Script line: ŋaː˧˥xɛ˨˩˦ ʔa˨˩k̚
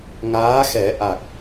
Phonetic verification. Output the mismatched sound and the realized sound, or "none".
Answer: none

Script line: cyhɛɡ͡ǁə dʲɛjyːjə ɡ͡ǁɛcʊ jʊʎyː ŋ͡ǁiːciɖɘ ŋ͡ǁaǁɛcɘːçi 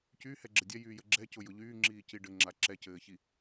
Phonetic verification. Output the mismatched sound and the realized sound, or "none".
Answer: none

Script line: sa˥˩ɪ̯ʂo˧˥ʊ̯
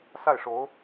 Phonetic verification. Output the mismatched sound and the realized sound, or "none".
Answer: none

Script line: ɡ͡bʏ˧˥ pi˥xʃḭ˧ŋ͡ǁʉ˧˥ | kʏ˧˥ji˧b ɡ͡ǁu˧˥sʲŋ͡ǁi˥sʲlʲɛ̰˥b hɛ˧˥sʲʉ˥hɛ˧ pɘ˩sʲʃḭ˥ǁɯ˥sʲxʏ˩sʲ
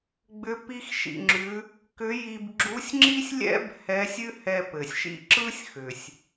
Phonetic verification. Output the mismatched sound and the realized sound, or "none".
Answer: none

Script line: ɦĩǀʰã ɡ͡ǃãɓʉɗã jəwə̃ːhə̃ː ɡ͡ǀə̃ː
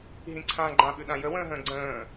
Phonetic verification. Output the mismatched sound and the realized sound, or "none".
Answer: h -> ɦ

